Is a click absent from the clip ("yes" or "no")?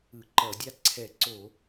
no